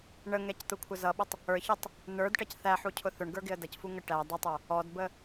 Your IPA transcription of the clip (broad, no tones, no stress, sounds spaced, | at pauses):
ɳ ə ŋ ɛ c t̪ ʊ kʷʰ ə z ʌ ɓ ʊ tˤ | ə˞ ç ɛ tˤ | n ə˞ d ʈ ʌ c θ æ ħ u cʰ ʊ θ ʊ ɳ ɡ ə˞ ɡ ɪ ə̯ d ʌ c f u ŋ ə ʈ æ dˤ ʊ tˤ ə˞ | ɔ d b ə